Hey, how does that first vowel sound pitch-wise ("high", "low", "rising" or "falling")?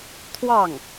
falling